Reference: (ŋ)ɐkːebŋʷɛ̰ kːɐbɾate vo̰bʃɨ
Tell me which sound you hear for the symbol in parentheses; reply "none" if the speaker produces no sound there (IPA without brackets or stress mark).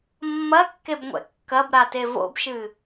mː